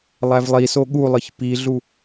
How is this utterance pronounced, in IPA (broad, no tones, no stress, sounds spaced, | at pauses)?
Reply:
lˠ æ v lˠ i s o ɠ u lˠ ɯ ç p i ɮ u